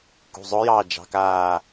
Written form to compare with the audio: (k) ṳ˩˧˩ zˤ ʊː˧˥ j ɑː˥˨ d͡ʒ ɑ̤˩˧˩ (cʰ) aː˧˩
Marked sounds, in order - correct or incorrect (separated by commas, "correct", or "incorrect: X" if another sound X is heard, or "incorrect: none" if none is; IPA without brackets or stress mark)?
correct, incorrect: k